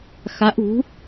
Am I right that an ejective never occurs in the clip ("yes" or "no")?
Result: yes